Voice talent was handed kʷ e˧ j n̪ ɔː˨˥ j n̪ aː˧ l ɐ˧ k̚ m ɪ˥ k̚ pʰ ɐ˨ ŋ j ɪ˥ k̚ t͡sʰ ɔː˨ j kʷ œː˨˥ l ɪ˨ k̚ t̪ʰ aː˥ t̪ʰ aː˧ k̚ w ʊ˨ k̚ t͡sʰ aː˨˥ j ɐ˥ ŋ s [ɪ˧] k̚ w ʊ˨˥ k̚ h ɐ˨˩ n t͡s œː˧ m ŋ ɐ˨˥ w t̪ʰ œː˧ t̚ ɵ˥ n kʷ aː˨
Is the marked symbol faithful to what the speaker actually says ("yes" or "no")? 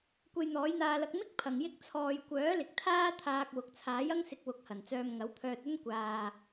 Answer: yes